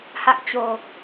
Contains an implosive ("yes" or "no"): no